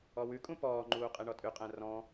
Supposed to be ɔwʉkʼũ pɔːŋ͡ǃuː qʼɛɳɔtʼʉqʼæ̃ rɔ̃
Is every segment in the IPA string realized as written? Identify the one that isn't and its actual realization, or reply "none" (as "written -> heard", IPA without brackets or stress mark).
none